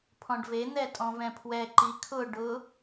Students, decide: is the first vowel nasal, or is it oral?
nasal